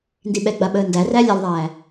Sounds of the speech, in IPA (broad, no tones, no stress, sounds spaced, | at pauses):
n d i ɓ ɛ ɡ͡b a ɓ əː n d æ r æ lʲ ɐ lˠ ðˤ æː